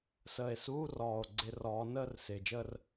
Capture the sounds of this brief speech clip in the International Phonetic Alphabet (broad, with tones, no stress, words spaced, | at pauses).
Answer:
səː˨˩e̯suː˧˥˧rɔː˨˩o̯ ɡ͡ǀɪ˧˩˧rɔː˩˧nəː˥˧r sɪː˨˩d͡ʒəː˥˧r